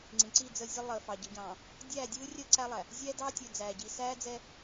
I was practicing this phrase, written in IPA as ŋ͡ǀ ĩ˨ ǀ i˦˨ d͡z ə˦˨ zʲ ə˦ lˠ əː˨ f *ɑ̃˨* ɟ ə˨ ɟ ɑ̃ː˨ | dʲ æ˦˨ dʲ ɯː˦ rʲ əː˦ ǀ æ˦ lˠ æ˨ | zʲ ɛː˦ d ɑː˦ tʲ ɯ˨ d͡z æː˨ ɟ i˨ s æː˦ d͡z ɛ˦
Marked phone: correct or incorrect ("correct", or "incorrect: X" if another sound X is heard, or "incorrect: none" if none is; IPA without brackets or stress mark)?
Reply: incorrect: ɑ˨